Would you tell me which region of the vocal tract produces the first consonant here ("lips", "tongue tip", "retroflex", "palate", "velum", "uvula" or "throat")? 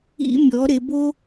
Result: lips